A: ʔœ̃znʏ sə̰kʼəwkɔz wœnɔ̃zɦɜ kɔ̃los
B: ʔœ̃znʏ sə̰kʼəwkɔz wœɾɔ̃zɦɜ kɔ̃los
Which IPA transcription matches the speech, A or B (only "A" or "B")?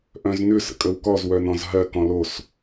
A